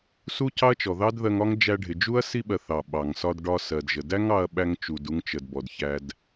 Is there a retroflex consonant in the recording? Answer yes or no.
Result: yes